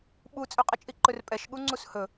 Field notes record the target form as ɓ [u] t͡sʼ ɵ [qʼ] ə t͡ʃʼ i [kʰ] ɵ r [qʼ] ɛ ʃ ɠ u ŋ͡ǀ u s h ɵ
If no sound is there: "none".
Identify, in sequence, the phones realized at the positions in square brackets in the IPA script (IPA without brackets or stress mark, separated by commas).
u, qʼ, ǃ, pʼ